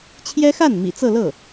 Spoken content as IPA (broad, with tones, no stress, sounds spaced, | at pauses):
t͡ɕʰ j ɛ˥ x a˥˩ n m ḭ˨˩ t͡s ɤ˥˧ l ɤ˥˩